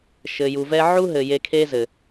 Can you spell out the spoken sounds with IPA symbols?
ʃɘ˨ju˨vɛ˧ ʕu˦ɦɘ˨ je˧kʰe˦zɘ˨

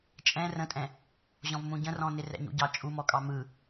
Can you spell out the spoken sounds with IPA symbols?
t͡ʃʼɛ̃ rə̃tʼɛ̃ | ʑɔ̃vmũɟə̃rɔ̃ nɪrɛ̰ɲṵɟɑ t͡ʃʼumɔkʼɑ mɯ

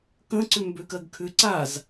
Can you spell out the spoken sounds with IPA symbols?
kə̃ǀʏ mbøkɜɡkʰʏ ǀaz

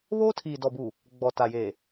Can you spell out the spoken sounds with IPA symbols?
βoː˦tʰiː˨ dɔ˨bu˨ | ɡ͡bɔ˨ta˨jeː˨

